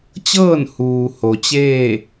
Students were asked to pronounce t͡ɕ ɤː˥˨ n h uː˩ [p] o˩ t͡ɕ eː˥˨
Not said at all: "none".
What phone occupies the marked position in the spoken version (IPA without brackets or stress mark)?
h